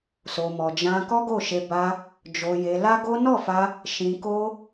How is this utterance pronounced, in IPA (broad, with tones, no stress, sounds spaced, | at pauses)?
s o˧ m ɔ˧ d͡ʒ ã˦ k ɔ˦ ɡ o˦˨ ʃ e˧ b a˧ | d͡ʒ o˧ j e˧ l a˦ ɡ o˦ n ɔ˦˨ f a˧ | ʃ ĩ˧ k o˦